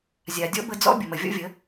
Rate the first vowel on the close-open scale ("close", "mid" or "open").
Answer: open